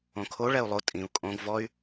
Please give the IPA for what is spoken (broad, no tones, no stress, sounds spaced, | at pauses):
õ kʰ o ɭ ɛ u̯ lˠ o tʼ ĩ u̯ kʼ õ ɡ v ɔ y̯